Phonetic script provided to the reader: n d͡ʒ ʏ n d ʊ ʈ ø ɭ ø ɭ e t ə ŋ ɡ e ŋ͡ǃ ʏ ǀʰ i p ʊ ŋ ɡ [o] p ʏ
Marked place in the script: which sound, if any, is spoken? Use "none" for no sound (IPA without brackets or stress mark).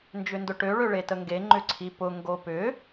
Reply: o